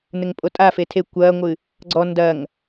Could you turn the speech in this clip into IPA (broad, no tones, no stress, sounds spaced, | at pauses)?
n ɘ ŋ pʼ o tʼ a f e tʰ e kʷ ɐː ŋʷ ɨ | ɡ͡ǀ ɔ n d ɐ ŋ